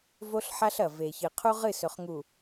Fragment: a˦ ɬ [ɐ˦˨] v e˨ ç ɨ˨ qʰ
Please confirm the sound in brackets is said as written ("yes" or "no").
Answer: no